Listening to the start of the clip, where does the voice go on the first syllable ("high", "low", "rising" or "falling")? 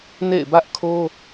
falling